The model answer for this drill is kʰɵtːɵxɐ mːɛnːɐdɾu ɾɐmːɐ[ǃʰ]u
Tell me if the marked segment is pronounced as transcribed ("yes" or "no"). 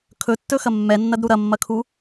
no